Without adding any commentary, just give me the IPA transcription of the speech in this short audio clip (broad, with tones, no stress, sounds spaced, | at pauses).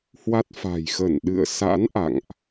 h w a˦˥ t̚ f a̤˨˩ j x ə˧˩ n ɗ ɨ̰˧˨ ə̯ s a̰˧˥ n ʔ a̰˧˨ ŋ ʔ